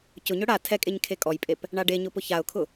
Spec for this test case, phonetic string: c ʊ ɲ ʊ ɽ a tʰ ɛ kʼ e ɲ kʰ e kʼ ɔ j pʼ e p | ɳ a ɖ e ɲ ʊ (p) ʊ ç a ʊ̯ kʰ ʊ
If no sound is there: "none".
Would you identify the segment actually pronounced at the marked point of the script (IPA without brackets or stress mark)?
p